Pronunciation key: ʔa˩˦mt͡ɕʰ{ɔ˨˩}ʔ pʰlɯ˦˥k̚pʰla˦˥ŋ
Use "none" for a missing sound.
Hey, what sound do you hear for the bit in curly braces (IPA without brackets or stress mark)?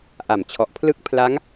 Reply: ɔ˨˩